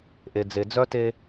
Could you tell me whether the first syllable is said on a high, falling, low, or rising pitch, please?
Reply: low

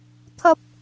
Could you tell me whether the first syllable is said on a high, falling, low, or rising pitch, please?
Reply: high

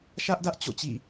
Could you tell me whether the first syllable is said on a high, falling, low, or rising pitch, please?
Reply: high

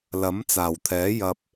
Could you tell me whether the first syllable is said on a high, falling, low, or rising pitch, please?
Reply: rising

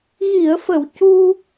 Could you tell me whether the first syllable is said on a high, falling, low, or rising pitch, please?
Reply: low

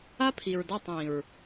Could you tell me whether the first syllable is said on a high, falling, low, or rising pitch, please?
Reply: high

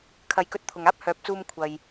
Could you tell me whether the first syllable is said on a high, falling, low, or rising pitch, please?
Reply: rising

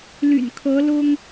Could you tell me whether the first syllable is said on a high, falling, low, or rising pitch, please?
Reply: low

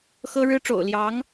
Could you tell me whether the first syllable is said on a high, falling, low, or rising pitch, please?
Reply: high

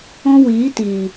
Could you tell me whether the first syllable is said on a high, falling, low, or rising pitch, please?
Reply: high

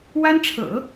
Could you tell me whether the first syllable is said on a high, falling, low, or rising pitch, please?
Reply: high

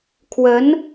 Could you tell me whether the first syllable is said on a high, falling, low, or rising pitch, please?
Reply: rising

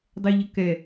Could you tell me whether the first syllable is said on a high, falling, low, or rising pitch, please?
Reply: high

